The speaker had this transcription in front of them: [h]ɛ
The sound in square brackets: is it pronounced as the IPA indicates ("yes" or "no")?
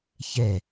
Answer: no